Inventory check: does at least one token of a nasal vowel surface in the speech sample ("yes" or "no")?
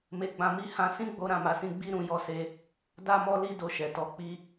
yes